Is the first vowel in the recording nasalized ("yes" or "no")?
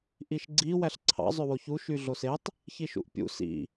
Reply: no